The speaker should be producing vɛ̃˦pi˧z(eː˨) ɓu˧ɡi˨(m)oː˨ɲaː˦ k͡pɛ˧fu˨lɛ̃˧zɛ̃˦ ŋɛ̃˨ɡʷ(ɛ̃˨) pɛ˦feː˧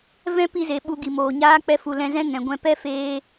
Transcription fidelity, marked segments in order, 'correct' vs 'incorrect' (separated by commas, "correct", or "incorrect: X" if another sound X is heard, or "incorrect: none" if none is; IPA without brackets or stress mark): incorrect: e˨, correct, incorrect: ɛ̃˧